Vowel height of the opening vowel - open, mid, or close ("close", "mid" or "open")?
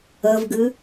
mid